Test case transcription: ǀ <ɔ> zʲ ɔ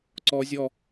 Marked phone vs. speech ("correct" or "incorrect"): correct